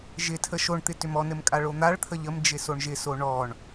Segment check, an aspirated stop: present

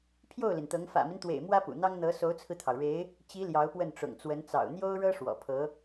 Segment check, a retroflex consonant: present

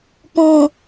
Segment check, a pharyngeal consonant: absent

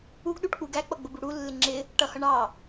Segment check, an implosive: present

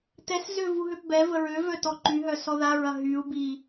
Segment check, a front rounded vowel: present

